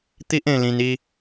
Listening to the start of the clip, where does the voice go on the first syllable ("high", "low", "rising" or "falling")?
high